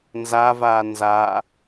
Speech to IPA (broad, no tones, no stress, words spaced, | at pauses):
nzavaː nza